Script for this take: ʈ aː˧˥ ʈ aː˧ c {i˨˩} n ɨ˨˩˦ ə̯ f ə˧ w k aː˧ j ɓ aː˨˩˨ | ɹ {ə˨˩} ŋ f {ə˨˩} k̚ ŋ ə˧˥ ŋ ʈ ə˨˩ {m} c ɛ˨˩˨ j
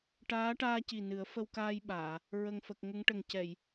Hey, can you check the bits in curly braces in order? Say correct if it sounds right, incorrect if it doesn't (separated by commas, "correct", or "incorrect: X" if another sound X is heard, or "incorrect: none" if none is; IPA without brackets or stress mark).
correct, correct, correct, incorrect: ŋ